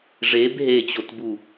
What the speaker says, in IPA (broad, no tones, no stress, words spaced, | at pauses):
ʐeb ɦet͡ɕotbu